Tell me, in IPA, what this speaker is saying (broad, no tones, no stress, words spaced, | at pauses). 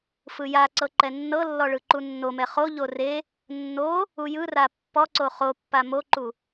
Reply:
fɯjaǀɤ ǃɛnːɤlːɔ ɭɯǃunːomɛ χoʎo re | nːo | ujɯra pːɔǀo χopːa moǃu